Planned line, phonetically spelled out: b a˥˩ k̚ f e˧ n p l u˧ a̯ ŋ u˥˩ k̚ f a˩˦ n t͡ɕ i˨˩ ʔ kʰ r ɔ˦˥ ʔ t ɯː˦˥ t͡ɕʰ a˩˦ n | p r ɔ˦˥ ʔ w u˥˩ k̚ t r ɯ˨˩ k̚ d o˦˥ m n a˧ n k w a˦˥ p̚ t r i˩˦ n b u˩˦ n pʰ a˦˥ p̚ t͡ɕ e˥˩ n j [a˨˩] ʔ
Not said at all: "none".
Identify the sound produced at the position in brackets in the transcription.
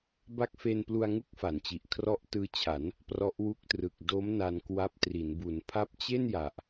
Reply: a˨˩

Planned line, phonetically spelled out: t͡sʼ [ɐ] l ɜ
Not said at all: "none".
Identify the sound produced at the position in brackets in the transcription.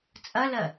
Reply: ɐ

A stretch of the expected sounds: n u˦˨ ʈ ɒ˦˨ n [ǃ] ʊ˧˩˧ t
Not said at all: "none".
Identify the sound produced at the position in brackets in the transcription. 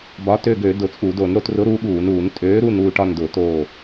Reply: d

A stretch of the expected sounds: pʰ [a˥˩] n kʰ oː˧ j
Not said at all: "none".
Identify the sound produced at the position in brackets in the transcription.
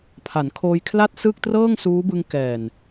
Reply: a˩˦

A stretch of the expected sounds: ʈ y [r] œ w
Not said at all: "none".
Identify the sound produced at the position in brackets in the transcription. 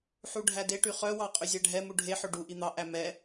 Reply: χ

